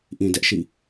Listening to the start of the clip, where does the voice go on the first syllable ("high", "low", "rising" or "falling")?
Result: low